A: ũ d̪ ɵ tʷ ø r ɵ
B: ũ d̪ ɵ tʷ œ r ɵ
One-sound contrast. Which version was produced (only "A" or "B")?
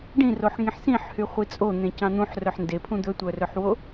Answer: B